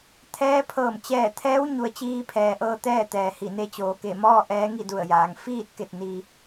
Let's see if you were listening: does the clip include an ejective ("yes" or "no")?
no